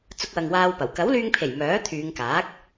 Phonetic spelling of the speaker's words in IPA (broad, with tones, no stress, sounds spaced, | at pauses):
t͡s ʊ˧ k̚ w ɐ˨ ŋ w aː˧ w p ɐ˨˩ w k ɐ˨˥ w l yː˧ ŋ pʰ e˨˩ j m œː˨˥ t̪ʰ yː˨˧ ŋ k aː˨˥ k̚